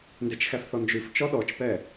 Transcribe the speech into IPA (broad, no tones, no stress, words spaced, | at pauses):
ndet͡ʃxæfθɔnd͡ʒʉf t͡ʃɔɗɔt͡ʃpɛ